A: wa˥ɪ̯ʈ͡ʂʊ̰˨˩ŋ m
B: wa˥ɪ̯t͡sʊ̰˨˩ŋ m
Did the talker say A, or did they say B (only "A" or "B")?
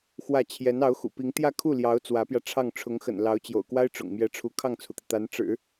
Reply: A